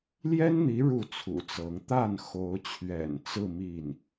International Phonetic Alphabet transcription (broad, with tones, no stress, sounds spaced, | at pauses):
l j ɛ˥ n n̪ i˧˥ ɻ u˥˩ t͡sʰ ṵ˨˩ t͡s ɤ˧˥ ŋ t̪ a˥˩ n x o˧˥ ʊ̯ t͡ɕʰ ɥ ɛ̰˨˩ n t͡s ɹ̩˥˧ m i˥˩ n